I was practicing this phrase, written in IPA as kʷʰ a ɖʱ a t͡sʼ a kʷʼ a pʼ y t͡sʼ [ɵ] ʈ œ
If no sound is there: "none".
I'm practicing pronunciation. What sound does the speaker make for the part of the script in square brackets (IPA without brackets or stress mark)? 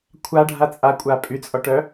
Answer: ɔ